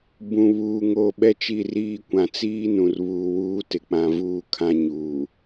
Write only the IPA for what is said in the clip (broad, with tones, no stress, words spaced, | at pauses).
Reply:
bũ˨βuː˨ŋo˦˨ ɓɛ˦t͡ʃi˦˨riː˦kʷã˨ t͡siː˦nũ˨r βuː˨wuː˦ tɪ˦k͡pã˦ vuː˦ kʰã˦ ɲuː˨